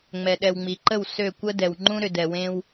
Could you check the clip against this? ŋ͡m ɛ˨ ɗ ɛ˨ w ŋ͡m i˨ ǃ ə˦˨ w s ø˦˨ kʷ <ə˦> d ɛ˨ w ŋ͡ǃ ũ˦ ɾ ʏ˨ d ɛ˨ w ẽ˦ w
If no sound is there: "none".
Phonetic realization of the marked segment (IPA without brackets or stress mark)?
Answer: ə˦